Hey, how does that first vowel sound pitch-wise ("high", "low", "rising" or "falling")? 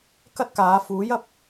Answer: high